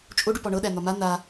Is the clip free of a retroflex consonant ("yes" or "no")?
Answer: no